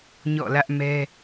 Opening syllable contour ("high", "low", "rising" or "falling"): falling